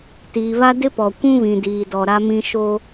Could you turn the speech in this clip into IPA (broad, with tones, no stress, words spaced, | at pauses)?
tiː˨βa˦ dɪ˦pɔ˨ kʷũ˦βĩ˨diː˨dɔ˨ ɾa˦mĩ˦ ʃo˦